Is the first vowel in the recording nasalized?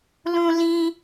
yes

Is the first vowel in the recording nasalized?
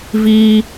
no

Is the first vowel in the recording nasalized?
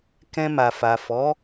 yes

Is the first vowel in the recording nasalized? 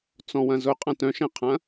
yes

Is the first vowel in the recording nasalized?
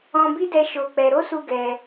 yes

